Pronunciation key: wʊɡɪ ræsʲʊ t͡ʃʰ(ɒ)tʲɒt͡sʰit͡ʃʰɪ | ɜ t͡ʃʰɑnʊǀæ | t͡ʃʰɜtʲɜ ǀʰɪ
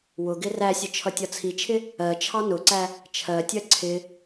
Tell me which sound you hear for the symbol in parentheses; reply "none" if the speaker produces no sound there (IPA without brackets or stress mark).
ʌ